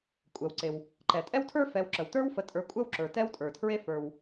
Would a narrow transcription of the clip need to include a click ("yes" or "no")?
yes